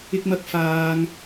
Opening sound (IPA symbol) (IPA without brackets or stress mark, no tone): ɪ